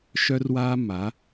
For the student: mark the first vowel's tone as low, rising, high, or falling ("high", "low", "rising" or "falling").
high